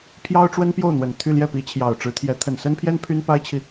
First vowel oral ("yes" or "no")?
yes